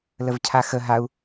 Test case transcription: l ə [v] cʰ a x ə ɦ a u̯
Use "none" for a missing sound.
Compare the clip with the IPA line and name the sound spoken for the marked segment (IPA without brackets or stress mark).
v